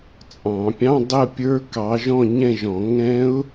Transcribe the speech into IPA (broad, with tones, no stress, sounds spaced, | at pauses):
t͡sʼ ɑ̃˨˩˦ pʲ ɑ̃˧˥˧ dˤ ə˥˧ pʲ ə˞˦˥ k ɑ˨˦ ʒ ɔ̃˥˧ ɲ ɛ̃˥˧ ʒ ɔ̃˨˩˦ ŋ ɛ̃˦˥ ʊ̯